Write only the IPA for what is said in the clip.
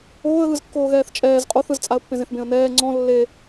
oː ə̯ ɣ ɯ z kː oː ɣ ɛː θ t͡ʃʼ ɛː z qʼ o θ ɯ z t͡sʼ a ə̯ pː ẽ z ẽ θ b ẽ ə̯ n ɛː ŋ͡ǀ ɔ̃ lː e

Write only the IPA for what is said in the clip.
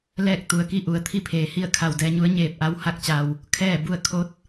l ɛː˥˨ k̚ t̪ u˩˧ ə̯ k i˥˨ ʔ u˩˧ ə̯ t̪ʰ i˥˨ pʰ eː˩˧ h i˥˨ ə̯ kʰ a˧˩ w d ɛː˧ ɲ u˧˥ ə̯ ɲ eː˧˩ p̚ ʔ a˧ w h a˧ k̚ t͡ɕ a˩ w | kʰ ɛː˥˨ b u˥˨ ə̯ kʰ o˧˥ t̚

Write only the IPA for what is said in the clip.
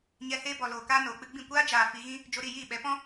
ɲ ɛ˧ h eː˧ b ɔ˨ l oː˨ k aː˧ n oː˨ k͡p ɨ˧ ɡ͡b ĩ˦˨ kʷ aː˦ d͡ʒ aː˨ f i˧ ɣ ĩ˦ | d͡ʒ o˧ ɾ i˦˨ j iː˦˨ ɓ ɛ˨˦ p ɔ̃˦

